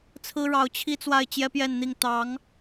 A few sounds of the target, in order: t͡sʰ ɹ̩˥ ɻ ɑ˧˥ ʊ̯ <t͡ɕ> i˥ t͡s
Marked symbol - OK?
no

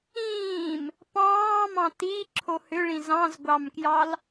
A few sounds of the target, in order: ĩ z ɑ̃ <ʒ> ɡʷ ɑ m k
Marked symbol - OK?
no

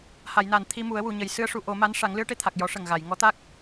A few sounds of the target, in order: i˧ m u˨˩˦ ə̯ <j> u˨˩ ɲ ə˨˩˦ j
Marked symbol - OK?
no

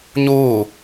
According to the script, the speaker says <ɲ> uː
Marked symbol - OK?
yes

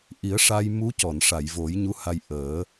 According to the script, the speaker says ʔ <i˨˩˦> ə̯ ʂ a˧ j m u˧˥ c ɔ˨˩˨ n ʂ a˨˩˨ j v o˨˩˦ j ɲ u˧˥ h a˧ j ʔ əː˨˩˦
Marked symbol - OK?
yes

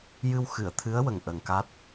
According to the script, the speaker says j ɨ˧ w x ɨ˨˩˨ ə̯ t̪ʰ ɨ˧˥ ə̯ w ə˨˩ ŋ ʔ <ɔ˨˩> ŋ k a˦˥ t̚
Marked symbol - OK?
no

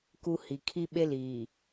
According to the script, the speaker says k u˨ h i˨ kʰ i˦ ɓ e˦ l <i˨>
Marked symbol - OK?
no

